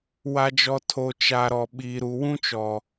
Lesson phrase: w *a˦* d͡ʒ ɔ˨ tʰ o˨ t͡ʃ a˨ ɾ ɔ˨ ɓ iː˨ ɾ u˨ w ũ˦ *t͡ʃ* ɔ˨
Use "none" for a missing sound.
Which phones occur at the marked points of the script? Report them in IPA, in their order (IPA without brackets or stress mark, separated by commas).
a˨, t͡ʃ